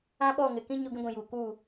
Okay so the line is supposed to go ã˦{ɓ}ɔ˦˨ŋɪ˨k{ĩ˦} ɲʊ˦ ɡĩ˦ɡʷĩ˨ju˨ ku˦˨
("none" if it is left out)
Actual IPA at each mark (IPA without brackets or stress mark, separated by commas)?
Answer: ɓ, ĩ˦